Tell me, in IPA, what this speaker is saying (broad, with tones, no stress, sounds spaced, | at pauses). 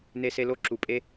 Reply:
n e˦ s e˦ l o˥ ǁ u˨ pʼ e˦